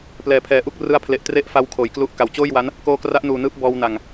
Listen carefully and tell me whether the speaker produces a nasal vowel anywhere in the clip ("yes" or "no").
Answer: no